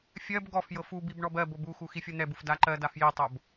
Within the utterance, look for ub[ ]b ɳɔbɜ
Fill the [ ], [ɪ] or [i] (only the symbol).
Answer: i